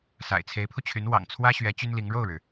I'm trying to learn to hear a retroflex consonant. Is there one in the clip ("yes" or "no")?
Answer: yes